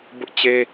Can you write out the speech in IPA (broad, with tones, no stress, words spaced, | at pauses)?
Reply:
bʊ˦ʔt͡ɕe˦